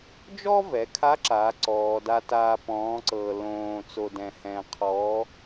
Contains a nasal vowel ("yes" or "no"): yes